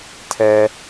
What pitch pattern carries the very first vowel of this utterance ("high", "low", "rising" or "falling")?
high